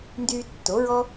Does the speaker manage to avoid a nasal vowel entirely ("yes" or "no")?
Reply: yes